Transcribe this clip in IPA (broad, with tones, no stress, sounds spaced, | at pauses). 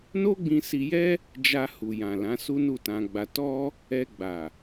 n o˦ ɡ͡b ĩ˧ s i˧ j ɛ˦ | d͡ʒ a˧ h u˨ j ã˨ l ã˨˦ s u˦ n u˦˨ t ã˧ ɡ͡b a˧ t ɔ˧ | ɛ˧ ɡ͡b a˨